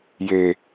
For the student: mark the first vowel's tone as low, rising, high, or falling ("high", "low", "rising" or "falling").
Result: low